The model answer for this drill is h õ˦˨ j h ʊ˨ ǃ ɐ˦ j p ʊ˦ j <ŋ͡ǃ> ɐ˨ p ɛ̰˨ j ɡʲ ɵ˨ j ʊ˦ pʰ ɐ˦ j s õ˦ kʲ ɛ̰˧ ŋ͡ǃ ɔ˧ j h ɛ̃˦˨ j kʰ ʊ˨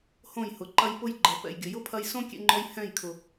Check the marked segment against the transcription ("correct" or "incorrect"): incorrect